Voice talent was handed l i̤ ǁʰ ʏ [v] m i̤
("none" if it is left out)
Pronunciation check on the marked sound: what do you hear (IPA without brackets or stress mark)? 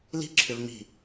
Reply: v